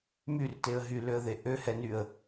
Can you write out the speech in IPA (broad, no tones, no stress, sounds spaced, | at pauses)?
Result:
m y r t e ə̯ ɦ y l ø ə̯ ð e ʔ ø h ɛ n y ə̯